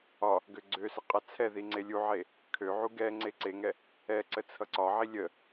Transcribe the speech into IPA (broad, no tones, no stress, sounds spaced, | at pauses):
ɒ | ɡ ø ɡ͡ǀ ø s ə qʼ a t͡sʰ ɛ ð i ŋ͡ǀ e lʲ u ʕ e | kʰ ø ʕ u ɡ ɛ ŋ͡ǀ e ǀ e ŋ ɛ | ɛ ǀ ə t͡sʰ ʌ ǀ ɒ ʕ i lʲ ə